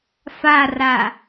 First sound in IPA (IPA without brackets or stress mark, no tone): f